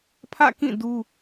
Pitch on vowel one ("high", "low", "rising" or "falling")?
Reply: falling